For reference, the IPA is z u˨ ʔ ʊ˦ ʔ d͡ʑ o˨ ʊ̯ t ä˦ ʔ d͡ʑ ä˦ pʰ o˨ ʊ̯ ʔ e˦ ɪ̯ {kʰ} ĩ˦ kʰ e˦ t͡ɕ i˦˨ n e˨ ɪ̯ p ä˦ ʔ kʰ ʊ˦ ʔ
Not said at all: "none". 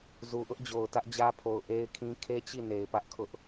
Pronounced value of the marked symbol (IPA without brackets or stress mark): kʰ